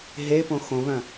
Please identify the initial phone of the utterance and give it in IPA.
ɦ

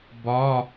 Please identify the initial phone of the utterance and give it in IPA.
b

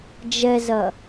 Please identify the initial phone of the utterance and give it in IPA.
d͡ʒ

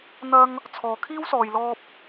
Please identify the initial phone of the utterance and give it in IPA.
n̪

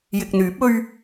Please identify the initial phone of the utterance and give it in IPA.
j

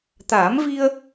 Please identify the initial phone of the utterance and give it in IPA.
t̪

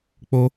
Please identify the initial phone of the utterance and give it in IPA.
k͡p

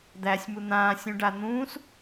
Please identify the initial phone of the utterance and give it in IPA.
d̪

